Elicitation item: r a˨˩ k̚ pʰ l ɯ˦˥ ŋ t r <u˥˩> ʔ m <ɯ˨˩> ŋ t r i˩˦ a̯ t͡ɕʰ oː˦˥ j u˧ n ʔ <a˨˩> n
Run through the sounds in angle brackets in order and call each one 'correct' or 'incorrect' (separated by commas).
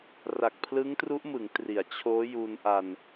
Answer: incorrect, incorrect, incorrect